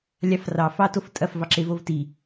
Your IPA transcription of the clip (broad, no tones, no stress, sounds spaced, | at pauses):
lʲ ɑ f r ɑ f ɑ t o f tʼ ɐ f v ɑ ǁ e v o v t i